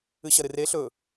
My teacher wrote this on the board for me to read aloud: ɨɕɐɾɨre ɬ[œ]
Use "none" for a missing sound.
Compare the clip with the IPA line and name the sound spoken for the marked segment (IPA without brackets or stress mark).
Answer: ɵ